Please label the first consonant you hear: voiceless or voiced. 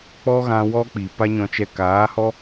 voiceless